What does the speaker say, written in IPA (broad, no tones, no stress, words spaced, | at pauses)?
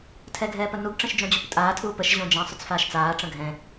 tʰɛɡʱɛːpənuɡ ʈ͡ʂə̃ʃd͡ʒõd͡ʑoptʼaː tʰuːpəʃ ʑõd͡ʒɛ̃ sˤʏt͡sfaːʃt͡saː ʈ͡ʂə̃ɡʱɛ̃